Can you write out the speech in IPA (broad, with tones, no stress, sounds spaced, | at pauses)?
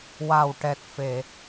w a˨˩ w ʈ ɛ˨˩ t̚ f e˨˩˨